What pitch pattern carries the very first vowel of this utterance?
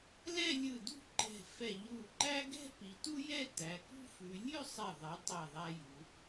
falling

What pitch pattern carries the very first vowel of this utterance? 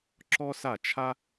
high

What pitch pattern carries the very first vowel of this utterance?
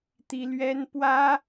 high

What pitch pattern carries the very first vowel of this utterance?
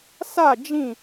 falling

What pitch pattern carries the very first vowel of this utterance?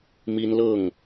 high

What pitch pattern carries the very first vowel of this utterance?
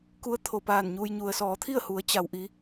rising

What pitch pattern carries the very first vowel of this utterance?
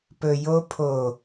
low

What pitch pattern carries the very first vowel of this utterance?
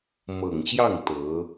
low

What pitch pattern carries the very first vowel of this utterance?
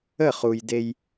falling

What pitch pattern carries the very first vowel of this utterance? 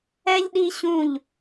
high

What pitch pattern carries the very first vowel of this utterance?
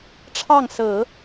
falling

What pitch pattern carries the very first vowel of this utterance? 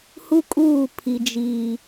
high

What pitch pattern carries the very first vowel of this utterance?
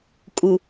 low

